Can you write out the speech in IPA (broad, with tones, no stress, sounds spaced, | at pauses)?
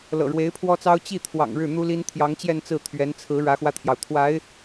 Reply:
l ɤ̰˨˩ ɻ w e˧˥ ɪ̯ pʰ w ɔ˥ t͡s ɑ˥ ʊ̯ t͡ɕ i˥˩ t̪ʰ w ɑ̰˨˩ ŋ ɻ ɻ̩˥˩ n̪ u˥ l i˥ n t̪ʰ j ɑ˧˥ ŋ t͡ɕ j ɛ˥˧ n t͡s ɹ̩˥˩ t̪ʰ ɥ ɛ˧˥ n t͡sʰ ɹ̩˧˥ ɻ ä˧˥ x w ä˧ t̪ʰ j ɑ˩ ʊ̯ t̪ʰ w a˧˥ ɪ̯